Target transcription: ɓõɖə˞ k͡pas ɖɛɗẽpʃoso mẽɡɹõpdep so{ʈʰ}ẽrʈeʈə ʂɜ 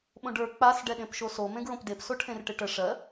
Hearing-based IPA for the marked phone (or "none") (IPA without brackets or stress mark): ʈʰ